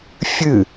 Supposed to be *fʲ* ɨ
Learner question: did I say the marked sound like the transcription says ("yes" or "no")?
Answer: yes